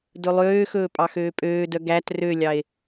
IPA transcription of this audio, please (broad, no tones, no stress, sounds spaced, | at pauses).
d ɵ lˠ øː x ɵː pʼ ɑ x øː pʼ øː d œ ɡ æ t r ø lʲ ɑ e̯